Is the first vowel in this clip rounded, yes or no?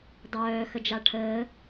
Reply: yes